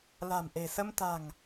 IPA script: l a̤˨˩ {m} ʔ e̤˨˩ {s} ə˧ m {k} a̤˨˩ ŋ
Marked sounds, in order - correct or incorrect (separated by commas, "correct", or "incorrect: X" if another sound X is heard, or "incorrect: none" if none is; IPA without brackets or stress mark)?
correct, correct, incorrect: t̪